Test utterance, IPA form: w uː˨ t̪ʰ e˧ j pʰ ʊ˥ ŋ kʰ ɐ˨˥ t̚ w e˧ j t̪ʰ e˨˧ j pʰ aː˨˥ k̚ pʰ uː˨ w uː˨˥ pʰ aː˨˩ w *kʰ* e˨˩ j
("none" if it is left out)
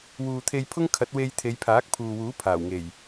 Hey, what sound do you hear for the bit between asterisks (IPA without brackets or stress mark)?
ŋ